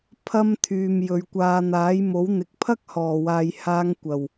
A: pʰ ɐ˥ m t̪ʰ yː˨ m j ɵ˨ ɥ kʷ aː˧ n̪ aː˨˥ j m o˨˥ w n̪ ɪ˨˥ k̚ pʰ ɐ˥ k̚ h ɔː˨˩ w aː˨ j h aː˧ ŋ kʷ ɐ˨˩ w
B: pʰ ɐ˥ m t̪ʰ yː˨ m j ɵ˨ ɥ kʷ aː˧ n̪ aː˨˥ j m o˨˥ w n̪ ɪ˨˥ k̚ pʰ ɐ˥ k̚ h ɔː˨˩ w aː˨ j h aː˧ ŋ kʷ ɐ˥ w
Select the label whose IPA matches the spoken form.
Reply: A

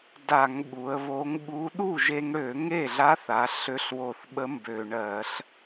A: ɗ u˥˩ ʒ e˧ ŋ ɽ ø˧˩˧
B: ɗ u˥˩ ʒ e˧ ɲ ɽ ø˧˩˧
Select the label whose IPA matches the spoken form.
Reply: A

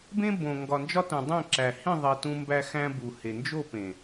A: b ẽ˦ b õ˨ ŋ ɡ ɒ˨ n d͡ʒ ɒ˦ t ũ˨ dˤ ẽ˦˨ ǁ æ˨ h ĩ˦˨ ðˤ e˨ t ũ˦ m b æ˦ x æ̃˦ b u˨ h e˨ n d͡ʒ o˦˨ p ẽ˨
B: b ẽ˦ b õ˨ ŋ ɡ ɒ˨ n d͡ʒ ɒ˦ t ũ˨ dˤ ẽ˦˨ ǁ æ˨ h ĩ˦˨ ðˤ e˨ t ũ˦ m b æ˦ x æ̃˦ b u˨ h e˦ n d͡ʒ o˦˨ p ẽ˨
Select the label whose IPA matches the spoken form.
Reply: A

